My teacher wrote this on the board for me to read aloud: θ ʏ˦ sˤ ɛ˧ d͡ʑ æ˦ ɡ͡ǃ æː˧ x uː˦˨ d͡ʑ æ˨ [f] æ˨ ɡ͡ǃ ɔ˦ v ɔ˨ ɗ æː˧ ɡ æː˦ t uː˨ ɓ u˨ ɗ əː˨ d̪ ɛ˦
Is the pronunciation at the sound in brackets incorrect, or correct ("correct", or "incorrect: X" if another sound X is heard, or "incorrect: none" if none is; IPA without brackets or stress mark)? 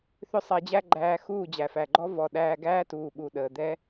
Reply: correct